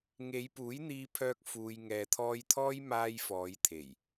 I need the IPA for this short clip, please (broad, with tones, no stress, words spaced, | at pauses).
ŋe˨˧jpuː˨˥jn̪iː˧pʰœː˧k̚ fuː˨j ŋɛː˨t̪ʰɔː˧jt̪ʰɔː˥j maː˧j fɔː˨˧jt̪ʰe˨˩j